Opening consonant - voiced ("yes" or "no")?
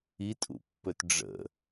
no